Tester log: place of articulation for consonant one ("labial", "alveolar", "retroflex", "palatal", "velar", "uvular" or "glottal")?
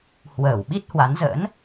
glottal